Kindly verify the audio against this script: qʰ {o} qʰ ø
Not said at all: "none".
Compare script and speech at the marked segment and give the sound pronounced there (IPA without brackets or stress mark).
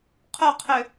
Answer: o